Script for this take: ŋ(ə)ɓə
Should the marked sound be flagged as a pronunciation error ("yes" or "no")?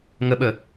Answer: no